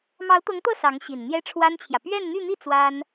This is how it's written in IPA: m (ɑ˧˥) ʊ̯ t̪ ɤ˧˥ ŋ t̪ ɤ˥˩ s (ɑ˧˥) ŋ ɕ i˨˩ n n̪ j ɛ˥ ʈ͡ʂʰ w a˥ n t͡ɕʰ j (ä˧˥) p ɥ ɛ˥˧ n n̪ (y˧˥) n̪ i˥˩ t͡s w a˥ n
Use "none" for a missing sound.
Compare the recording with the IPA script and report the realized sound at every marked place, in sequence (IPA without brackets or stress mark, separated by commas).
ɑ˧˥, ɑ˧˥, ä˨, y˥˧